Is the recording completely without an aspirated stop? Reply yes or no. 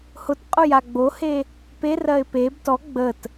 yes